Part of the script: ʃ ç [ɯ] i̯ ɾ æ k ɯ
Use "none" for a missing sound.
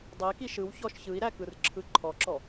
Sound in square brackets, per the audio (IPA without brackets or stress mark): ɯ